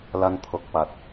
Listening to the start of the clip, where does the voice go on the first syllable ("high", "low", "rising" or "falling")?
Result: high